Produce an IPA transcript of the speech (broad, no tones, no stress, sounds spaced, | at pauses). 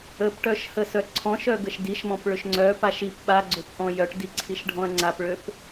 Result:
ə p ʈ œ ʃ h ə s œ ǀʰ ɔ̃ ʃ œ ɡ ə ʃ d i ʃ m ɔ̃ p ɭ ø ʃ ŋ͡ǀ œ p a ʃ i p ɓ a ɡ͡ǀ ø p ʔ ɔ̃ j œ ʈ d i ǀʰ i ʃ ɖʱ ɔ̃ ɐ̯ ŋ͡ǀ a p ɭ ø p